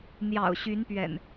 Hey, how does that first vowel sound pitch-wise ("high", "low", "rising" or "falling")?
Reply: low